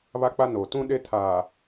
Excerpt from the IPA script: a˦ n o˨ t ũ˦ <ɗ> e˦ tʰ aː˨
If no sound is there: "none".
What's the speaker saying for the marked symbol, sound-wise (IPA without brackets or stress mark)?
ɗ